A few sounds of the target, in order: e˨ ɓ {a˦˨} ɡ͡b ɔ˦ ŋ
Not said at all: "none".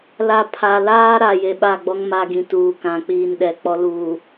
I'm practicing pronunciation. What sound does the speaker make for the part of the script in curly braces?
a˦˨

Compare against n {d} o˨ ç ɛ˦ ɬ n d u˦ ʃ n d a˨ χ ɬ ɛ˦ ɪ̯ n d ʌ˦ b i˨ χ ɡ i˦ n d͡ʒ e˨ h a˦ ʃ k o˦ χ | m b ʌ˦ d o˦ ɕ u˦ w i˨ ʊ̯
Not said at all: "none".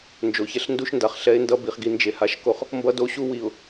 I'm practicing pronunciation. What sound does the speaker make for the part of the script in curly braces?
d͡ʒ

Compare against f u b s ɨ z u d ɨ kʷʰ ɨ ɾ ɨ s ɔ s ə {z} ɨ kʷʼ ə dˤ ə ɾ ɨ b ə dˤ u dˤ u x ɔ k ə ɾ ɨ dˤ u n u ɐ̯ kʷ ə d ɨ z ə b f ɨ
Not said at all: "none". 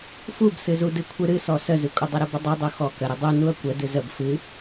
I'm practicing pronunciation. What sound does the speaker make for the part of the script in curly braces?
z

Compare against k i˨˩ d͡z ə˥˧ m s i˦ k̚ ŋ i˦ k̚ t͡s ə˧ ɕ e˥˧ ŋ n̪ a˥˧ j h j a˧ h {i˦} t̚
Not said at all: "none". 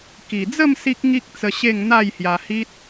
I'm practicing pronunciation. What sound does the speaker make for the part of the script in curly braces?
i˦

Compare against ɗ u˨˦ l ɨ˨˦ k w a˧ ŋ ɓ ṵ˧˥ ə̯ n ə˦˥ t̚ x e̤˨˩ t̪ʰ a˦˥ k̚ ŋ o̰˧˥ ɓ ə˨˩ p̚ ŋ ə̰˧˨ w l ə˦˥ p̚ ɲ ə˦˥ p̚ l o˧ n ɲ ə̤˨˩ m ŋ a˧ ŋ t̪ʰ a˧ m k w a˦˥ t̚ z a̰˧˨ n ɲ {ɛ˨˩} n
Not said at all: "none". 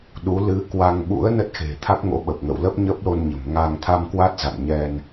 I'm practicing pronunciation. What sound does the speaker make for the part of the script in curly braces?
ɛ˧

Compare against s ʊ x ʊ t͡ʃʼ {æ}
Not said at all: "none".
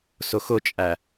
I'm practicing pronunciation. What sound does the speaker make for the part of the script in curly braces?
æ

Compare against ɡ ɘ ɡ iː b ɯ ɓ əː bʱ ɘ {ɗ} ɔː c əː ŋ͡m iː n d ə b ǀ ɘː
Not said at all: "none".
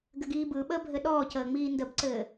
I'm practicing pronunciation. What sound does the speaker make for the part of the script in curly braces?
ɗ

